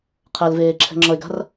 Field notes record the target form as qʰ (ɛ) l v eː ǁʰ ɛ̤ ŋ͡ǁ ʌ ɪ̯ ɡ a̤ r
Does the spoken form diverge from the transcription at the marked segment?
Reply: no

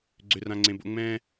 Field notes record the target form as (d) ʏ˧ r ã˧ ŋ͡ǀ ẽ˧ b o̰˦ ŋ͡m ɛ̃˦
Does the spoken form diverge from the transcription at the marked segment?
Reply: yes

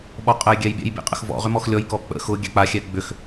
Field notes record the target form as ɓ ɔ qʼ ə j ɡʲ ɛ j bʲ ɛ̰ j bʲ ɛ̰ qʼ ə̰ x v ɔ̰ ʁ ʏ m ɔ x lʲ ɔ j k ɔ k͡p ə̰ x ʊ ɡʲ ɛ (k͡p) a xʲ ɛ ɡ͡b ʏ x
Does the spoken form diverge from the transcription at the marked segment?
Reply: no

